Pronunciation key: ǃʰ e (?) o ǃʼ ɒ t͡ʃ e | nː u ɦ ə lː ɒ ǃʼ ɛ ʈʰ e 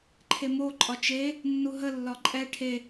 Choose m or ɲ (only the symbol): m